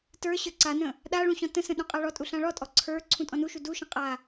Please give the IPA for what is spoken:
tə˞ ɕə˞ǀanə̃ | ɗaɭũ ɕɔ̃tə̃sə̃ ɗũqʼaɭɔtʼu ɬãɭɔtʼɔ ǀʰə˞ ǀʰũtʼɔ̃nuʃu duʃə̃ qʼa

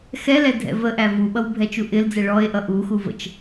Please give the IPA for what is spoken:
xɛlɛ dʱɛ̰vəʔæ vuɓʌw bʱɛt͡ʃuʔɪld͡zɛ ɭɔe̯ʔʌ ʔuxu və̰t͡ʃ

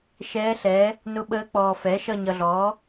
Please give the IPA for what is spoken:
ʃɛː˧˥ɬɛ˩˥ | nʊ˧˥ɓəː˧˥ k͡pɔː˨ fɛː˩˥ʃʌ˦˨ɲʌ˨ɮɔː˩˥

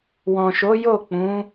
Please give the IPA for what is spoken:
wɔ̃˨ʃo˨˦jo˦˨k͡pũ˨˦

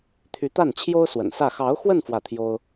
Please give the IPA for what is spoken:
t̪ʰy˧˥t̪a˥˩nt͡ɕʰjo˥ʊ̯ swə̰˨˩nsä˥˩ xɑ˧˥ʊ̯xwə˥˧n fwä˥˩t̪ʰjo˥ʊ̯

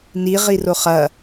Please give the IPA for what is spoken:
ni ʁiroχɐ

